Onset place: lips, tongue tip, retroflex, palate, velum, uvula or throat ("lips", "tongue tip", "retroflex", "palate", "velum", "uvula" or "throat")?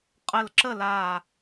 uvula